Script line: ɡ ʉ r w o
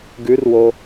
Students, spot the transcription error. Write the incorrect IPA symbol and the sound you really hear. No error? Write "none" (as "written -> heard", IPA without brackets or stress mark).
none